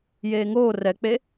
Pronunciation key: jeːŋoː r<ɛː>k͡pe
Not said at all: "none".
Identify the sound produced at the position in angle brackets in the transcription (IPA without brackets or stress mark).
ɛ